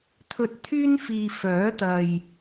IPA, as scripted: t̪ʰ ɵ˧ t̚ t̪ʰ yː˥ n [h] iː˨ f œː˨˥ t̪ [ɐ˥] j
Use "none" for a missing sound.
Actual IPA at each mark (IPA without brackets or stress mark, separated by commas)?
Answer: f, ɐ˨